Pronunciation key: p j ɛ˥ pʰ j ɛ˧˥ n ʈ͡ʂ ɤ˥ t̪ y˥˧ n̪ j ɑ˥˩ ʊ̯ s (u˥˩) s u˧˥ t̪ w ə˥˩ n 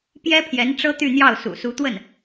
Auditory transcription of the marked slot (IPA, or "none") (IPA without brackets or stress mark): ṵ˨˩